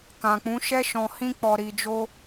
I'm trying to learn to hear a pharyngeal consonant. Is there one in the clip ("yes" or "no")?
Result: no